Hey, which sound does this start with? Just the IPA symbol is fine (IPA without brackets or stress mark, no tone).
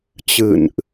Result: t͡ɕ